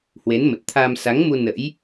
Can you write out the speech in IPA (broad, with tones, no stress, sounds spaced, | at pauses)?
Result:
h w e˨˦ n m ə˨˩ t̚ t̪ʰ aː˧ m s a˨˦ ŋ m u˧ n ə̰˧˥ j